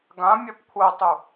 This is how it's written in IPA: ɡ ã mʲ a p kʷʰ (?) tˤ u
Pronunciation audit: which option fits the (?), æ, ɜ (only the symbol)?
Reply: ɜ